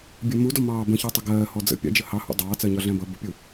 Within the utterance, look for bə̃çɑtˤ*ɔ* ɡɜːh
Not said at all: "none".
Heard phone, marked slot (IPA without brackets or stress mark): ʌ